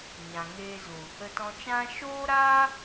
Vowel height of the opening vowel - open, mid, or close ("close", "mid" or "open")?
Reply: open